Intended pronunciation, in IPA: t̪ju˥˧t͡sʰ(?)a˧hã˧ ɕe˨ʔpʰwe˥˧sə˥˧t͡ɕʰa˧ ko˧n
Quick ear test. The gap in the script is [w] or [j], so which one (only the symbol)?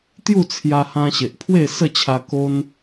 j